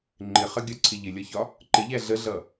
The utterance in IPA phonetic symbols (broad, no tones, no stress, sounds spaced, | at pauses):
ŋ͡ǃ ɪ χ ə ɡʲ ɒ ǀʰ ɪ ʎ ɪ lʲ ɒ ç ɒ | ǃ ɪ ʎ æ ɮ ə ɮ ʌ